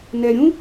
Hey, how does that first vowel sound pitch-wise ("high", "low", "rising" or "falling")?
low